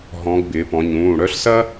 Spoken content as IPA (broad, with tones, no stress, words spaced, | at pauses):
ɦɔ̃˩˧ɡ bɪː˩˧pɔ̃˩˧ɲũː˩˧˩ɽœ˥ɬ sɐ˥